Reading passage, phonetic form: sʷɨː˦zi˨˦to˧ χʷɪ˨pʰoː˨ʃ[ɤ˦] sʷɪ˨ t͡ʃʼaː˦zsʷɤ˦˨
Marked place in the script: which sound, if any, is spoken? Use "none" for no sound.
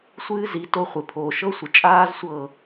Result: ɤ˦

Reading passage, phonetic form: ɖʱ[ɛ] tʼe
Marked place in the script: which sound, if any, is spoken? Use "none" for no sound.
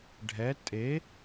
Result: ɛ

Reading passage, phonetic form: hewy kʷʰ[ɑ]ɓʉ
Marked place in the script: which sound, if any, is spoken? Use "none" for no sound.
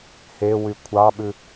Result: ɑ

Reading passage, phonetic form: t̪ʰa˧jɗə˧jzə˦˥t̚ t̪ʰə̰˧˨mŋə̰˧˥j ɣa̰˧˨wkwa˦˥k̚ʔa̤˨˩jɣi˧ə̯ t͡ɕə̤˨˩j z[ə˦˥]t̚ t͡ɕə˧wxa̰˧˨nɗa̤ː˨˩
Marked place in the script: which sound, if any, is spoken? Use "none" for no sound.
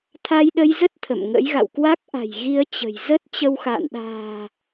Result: ə˦˥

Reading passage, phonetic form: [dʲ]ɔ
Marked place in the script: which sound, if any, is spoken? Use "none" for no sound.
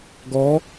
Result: ɡ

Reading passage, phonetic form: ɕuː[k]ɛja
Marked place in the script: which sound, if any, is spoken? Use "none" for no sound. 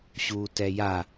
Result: t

